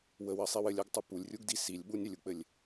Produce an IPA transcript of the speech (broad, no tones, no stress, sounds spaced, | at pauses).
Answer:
w ə w ɜ sˤ i w ɘ lʲ ɜ ɡ tˤ u p u lʲ rʲ u ɡ d i s i lʲ ɓ u nʲ ɘ lʲ u k͡p ɘ lʲ